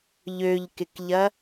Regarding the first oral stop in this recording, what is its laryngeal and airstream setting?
plain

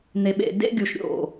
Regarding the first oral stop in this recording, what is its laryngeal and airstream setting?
implosive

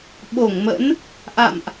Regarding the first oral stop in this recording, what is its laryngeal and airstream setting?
implosive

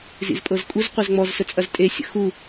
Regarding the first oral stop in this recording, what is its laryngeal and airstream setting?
ejective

